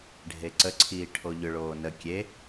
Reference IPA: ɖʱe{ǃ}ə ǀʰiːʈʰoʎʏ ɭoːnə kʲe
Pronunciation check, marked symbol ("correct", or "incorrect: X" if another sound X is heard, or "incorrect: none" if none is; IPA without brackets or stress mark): incorrect: ǀ